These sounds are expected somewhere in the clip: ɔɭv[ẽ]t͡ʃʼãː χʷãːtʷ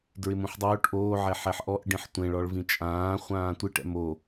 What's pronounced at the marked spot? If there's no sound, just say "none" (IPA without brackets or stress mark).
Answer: ĩ